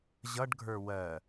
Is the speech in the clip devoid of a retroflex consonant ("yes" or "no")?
no